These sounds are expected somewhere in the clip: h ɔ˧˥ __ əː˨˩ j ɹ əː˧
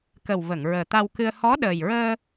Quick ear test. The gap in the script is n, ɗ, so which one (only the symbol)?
ɗ